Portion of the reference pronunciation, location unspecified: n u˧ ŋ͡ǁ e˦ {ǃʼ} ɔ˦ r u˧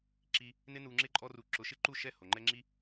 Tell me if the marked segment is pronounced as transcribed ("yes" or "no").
yes